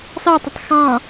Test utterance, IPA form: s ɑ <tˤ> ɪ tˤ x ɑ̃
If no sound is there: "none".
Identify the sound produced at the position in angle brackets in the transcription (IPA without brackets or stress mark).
tˤ